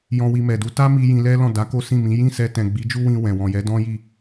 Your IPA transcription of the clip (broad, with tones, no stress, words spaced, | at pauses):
jɔ̃˧wi˧mɛ˨du˧ ta˦mi˧ jĩ˧lɛ˦lɔ̃˦˨ da˨˦ ko˦sĩ˦˨mĩ˨˦ jĩ˦˨sɛ˧tɛ̃˨ ɡ͡bi˨˦d͡ʒu˦wĩ˧ wɛ̃˨ wɔ̃˨jɛ˨˦ dɔ̃˦ji˦˨